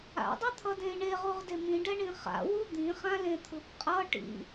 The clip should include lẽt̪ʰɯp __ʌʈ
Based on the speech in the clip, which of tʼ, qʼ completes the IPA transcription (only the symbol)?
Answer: qʼ